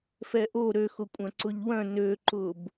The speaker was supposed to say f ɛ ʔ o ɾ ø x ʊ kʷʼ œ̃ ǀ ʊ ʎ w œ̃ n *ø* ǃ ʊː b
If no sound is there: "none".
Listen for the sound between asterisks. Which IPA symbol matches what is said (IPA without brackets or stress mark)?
ø